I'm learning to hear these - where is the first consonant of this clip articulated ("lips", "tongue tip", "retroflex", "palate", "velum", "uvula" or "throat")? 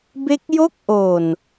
lips